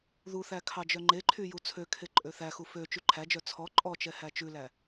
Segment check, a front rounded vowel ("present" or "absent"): present